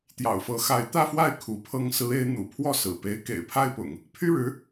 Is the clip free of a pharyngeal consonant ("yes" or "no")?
yes